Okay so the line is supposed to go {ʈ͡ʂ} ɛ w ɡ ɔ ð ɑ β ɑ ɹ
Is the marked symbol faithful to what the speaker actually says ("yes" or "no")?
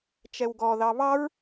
no